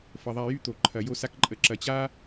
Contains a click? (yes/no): yes